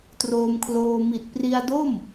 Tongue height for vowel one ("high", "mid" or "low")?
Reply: mid